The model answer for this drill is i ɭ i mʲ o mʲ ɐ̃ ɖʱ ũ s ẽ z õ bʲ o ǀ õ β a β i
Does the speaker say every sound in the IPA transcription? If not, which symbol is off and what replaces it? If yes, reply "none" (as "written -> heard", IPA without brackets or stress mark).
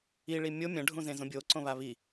s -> z